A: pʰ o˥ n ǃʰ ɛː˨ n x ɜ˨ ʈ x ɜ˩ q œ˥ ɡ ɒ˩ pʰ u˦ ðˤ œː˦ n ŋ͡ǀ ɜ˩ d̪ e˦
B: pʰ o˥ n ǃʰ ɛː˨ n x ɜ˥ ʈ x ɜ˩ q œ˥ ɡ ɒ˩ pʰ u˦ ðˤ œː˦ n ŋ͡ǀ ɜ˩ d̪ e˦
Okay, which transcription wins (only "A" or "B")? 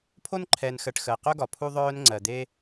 A